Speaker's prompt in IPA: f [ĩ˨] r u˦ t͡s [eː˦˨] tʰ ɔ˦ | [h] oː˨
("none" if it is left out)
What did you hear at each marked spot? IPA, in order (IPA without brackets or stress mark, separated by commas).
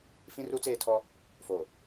ĩ˦, eː˦˨, f